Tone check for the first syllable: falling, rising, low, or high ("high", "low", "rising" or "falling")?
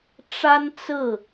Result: high